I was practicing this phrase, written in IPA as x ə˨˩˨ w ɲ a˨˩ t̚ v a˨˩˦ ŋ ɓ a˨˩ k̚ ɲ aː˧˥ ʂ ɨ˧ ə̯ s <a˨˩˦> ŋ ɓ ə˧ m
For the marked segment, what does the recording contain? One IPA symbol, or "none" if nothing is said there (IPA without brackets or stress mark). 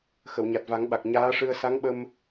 a˧˥